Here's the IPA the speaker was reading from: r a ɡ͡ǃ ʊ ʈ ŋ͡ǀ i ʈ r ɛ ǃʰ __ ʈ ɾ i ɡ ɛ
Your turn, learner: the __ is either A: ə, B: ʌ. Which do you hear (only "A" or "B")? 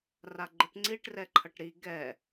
B